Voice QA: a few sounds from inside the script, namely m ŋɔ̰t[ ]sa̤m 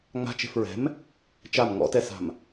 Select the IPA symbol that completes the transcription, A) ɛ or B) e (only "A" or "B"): A